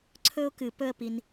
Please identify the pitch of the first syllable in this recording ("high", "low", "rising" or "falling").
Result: high